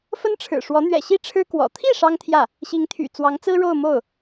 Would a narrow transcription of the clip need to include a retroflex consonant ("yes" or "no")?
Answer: yes